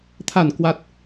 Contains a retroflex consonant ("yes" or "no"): no